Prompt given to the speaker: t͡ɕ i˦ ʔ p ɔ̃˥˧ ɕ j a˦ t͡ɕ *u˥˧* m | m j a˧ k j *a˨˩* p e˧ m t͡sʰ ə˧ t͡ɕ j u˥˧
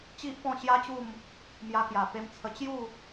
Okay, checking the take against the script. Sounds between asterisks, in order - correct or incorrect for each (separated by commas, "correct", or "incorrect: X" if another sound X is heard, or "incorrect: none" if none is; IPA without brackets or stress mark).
correct, correct